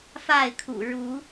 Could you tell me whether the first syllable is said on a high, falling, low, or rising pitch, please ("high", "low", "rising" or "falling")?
falling